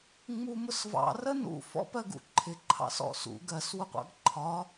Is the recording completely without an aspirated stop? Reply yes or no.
no